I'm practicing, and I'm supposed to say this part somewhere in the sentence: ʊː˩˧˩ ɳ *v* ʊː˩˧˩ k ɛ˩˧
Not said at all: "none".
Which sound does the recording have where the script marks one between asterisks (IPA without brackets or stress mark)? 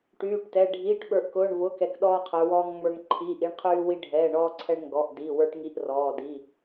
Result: v